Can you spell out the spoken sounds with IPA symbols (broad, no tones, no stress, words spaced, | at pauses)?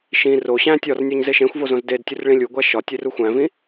ʃĩ ro ɕæ̃ tʲɒrnʲoɲ zeʃẽxʷvo zõzdedtʲur ɭĩlʲuɡʷæ ʃɒtʲer uxʷæ̃vĩ